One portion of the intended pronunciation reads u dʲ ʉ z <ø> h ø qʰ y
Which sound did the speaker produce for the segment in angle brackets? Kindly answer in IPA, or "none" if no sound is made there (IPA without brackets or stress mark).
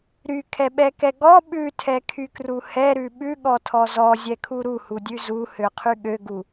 u